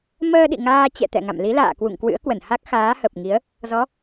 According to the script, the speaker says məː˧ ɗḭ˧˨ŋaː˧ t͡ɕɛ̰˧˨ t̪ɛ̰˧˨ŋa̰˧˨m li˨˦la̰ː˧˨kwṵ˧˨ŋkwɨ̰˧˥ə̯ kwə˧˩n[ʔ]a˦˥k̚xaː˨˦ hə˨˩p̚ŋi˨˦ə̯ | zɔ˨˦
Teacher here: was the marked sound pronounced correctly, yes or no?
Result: no